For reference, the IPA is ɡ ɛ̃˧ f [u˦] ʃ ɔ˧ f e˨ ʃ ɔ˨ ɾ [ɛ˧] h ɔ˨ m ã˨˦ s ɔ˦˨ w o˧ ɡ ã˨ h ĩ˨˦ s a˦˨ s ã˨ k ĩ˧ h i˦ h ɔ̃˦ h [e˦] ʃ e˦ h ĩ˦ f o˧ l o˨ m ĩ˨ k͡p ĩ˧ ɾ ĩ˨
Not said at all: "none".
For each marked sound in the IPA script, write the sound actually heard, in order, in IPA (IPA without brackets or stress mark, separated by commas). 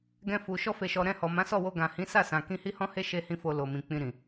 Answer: u˨, ɛ̃˧, e˦